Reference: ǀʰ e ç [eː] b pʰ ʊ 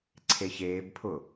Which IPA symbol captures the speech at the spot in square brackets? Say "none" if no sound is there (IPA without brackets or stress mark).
eː